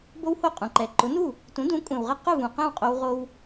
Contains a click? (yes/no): yes